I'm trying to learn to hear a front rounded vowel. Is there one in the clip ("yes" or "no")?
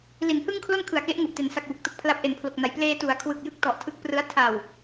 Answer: no